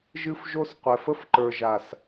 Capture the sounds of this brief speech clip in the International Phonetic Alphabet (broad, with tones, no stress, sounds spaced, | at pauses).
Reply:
ʒ ɨ˦ f ʒ o˦ s qʷ ɛ˨ f ə˦ f ǃ ə˞˨ ʒ a˨ s